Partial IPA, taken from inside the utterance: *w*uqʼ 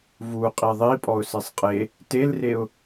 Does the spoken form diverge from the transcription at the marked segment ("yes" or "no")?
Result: yes